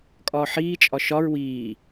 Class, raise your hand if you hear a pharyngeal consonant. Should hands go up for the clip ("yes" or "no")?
yes